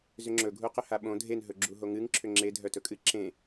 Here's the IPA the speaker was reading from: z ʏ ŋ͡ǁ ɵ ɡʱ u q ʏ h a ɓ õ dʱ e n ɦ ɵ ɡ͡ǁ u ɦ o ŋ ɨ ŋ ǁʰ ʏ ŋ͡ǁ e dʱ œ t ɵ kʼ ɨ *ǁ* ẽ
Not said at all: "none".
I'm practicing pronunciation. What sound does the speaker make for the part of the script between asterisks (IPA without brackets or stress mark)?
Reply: ǁ